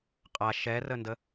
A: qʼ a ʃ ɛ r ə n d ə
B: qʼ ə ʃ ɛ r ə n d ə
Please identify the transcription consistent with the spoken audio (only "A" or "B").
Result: A